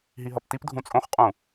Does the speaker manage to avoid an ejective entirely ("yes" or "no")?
no